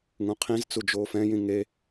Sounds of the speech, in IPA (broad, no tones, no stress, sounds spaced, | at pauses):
ŋ ũ qʰ ĩ z t͡s u d͡ʒ oː f ɛ̃ j ĩ ŋ e